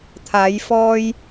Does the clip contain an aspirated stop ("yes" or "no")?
yes